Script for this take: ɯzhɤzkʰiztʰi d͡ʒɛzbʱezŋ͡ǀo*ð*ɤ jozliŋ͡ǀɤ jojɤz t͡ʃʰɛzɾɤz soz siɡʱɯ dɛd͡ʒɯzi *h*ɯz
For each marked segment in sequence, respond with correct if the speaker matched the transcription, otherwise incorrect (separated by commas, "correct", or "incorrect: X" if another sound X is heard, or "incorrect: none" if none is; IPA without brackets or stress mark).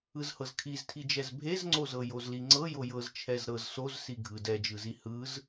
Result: incorrect: z, correct